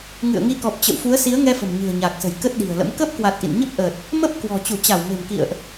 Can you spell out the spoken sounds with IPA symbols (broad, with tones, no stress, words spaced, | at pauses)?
ŋɨ̰˧˨ə̯ŋi˧kɔ˨˩p̚t͡ɕə̰˧˨w fu˨˦ə̯si˨˦ə̯ŋɛ˧ fə̤˨˩mɲɨ̤˨˩ə̯ɲaː˨˩k̚sə̤˨˩j kə˦˥t̚ɗi̤˨˩ə̯lə̰˧˥m kəː˦˥p̚kwa˨˩t̚ ʔḭ˧˨n ɲə˦˥p̚ʔəː˨˩t̚ | mə˦˥p̚ kwɔ̤˨˩ t͡ɕu˧˩t͡ɕa˧˩w me̤˨˩mkḭ˧˨ə̯ʔ